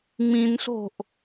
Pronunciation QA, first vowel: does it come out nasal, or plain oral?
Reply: nasal